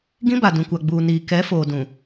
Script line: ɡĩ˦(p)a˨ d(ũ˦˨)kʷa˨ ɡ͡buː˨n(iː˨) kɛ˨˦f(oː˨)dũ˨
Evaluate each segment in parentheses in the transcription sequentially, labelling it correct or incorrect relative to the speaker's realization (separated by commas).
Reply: incorrect, incorrect, correct, correct